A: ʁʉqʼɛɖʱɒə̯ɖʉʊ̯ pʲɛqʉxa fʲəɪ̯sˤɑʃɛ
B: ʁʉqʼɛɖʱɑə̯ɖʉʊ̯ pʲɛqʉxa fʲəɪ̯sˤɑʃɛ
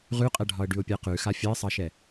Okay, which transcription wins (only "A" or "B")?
A